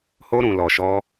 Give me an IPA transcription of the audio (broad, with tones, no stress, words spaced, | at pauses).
ho˧ɾũ˨ lɔ˨ʃɔ˧